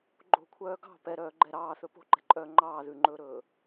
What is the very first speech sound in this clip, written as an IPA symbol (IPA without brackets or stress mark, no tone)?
ɡ͡ǃ